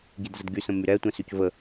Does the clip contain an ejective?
no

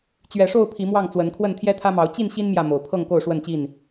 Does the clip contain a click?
no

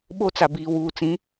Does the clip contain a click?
no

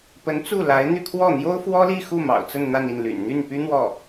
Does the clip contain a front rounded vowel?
yes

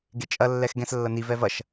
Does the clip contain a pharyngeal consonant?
no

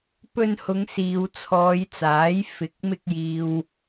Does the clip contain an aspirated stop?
yes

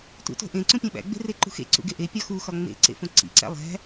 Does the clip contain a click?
yes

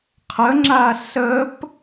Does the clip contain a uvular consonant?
yes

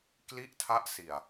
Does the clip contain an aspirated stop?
yes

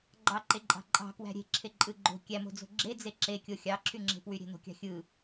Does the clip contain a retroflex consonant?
no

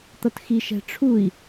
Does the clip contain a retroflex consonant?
yes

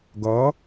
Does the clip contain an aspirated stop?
no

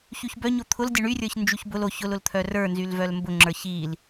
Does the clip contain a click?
yes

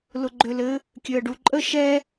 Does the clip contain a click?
yes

